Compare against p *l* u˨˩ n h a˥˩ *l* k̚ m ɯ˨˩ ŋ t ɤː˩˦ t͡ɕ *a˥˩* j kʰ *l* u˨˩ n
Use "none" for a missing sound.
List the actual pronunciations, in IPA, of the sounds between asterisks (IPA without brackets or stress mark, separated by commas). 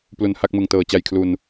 l, none, a˨˩, l